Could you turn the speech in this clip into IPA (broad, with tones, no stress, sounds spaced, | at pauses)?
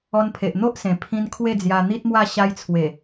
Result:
ɔ˧ n pʰ e˨ ʔ n̪ o˦ ʔ s ẽ˨˩ pʰ ĩ˧ n kʰ w e˥˧ d͡z j a˧ n̪ i˦ t̚ m w a˥˧ ɕ a˧ j t͡sʰ w e˨˩